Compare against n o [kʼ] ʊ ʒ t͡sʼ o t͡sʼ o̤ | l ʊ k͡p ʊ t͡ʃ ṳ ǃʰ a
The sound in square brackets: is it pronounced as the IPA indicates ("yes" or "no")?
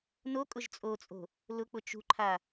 yes